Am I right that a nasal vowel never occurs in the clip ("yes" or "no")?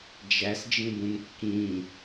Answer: no